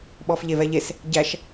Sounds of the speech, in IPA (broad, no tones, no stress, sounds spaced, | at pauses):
ɓ ɔː f ʎ e v ɛ ʎ e s | ɟ æ ʃ